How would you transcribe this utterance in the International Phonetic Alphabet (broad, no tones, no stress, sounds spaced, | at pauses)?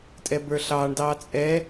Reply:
tʼ ɛ b ə˞ ɬ ɑː ɳ d ɑː t͡sʼ ɛ